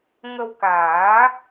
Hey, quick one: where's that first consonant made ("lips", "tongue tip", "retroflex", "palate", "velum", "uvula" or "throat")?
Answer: velum